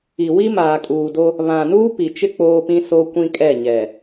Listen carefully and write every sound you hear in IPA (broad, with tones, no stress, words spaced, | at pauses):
i˨ wi˦maː˨kʼuː˨do˦ | βã˨ nuː˦pi˨t͡ʃɪ˦ k͡poː˦pĩ˦ so˦kʷĩ˦kʼɛ˦˨ ɲɛ˨